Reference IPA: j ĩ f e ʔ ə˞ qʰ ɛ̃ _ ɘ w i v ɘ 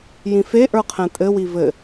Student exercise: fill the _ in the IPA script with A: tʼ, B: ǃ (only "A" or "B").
A